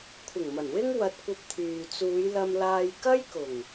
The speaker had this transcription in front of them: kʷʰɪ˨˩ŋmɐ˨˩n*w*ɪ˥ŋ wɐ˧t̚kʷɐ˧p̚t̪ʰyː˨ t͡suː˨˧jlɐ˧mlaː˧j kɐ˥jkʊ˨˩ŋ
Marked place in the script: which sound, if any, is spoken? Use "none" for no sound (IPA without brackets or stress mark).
w